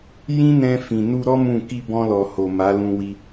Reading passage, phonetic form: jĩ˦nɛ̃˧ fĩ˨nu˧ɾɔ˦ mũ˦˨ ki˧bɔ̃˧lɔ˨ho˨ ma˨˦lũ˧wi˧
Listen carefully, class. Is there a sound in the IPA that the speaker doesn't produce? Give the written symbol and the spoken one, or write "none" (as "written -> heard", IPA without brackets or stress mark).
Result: none